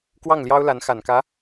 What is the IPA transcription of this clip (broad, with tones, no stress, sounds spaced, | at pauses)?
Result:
k w ɑ˥˩ ŋ l j ɑ˥ ʊ̯ l a˧˥ n x a˨˩ n k ä˧˥